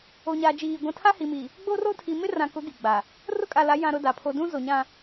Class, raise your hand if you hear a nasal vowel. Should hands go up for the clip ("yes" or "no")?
yes